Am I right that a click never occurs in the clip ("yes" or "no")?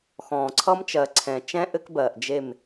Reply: no